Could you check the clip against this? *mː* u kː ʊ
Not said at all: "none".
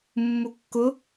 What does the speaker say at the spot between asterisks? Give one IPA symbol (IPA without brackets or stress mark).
mː